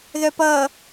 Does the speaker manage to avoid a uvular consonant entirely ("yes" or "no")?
yes